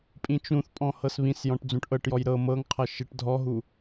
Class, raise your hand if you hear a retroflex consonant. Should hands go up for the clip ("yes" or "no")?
yes